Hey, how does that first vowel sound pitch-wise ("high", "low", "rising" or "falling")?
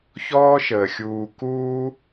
high